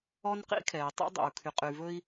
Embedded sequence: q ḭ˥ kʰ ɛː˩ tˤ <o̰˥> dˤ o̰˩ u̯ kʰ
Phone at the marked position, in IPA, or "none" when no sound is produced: o̰˥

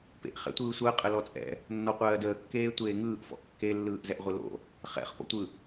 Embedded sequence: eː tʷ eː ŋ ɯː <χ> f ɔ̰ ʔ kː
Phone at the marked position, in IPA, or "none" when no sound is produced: ʔ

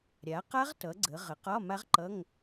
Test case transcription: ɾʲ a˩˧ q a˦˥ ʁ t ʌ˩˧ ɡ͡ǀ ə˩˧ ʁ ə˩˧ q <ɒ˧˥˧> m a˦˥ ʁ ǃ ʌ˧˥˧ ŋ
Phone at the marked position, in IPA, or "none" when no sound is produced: ɒ˧˥˧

